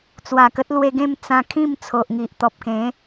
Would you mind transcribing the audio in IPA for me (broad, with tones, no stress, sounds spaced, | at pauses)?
t͡s w a˨˩ k ə˦ t̚ l w e˧ ɡ ẽ˥˧ m t͡s ã˧ kʰ ĩ˥˧ m t͡sʰ o˨ ʔ ŋ i˨ ʔ t̪ ɔ˨ p̚ k ẽ˨˦